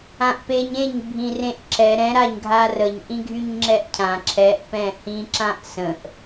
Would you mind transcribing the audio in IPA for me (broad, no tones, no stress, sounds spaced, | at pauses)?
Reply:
ã ʔ p e ɲ ẽ ɲ bʱ ĩ r ẽ ʔ ǁ ɛ ɾ ɛ̃ ɾ a ɲ ɡʱ a r ə ɲ ʔ ĩ ɡʱ y ɲ ŋ͡ǁ ɛ ʔ cʰ ã ǁʰ ɛ ʔ p ɛ̃ h ĩ ǁ ã ʔ s ə̃ ʔ